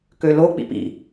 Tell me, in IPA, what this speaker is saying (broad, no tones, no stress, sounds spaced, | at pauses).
k ø l o k͡p ḭ p ḭ